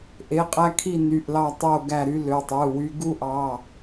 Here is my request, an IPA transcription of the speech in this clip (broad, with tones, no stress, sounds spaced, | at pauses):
ʔ e˩˧˩ qʼ æ˦ kʰ i˦˨ n y˩˧˩ ʔ l ɑ˦˨ tˤ o˦˨ ɡ æ˦˨ ɾ y˦ l ø˩˧˩ tˤ ɯ˩˧˩ w y˦ ɡ u˦ ʔ ɑ˩˧˩